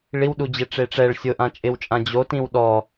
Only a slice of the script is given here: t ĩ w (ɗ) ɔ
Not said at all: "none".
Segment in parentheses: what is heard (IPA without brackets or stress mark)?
ɗ